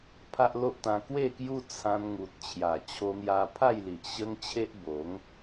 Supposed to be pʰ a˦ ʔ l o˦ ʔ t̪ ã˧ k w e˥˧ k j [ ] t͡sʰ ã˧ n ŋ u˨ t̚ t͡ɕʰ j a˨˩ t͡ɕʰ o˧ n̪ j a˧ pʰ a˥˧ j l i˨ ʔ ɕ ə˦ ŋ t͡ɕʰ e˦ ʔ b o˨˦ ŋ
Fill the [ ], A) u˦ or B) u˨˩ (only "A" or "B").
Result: A